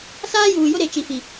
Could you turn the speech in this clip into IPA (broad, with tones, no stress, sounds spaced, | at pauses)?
s aː˦ j uː˨ j ʊ˦ ɾ e˨ t͡ʃ i˨ f i˨